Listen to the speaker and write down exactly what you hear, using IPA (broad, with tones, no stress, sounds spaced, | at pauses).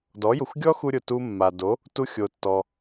d ɔ˩˥ j ʊ˩ xʷ ɡʲ ɔ˥ x u˧ ɾʲ ʊ˩ t u˧ mː a˩ d o˩˥ | t u˧ xʲ o˩ tː ɔ˩